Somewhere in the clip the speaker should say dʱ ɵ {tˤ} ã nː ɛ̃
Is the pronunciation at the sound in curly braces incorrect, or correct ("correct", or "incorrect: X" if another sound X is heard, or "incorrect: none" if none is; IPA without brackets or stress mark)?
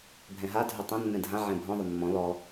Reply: correct